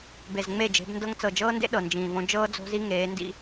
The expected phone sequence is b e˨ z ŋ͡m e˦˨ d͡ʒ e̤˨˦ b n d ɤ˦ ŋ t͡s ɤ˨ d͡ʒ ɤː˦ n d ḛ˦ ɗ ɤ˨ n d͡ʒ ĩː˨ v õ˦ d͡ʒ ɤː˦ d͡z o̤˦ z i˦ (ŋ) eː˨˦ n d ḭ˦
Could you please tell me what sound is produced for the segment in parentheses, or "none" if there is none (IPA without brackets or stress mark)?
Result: ŋ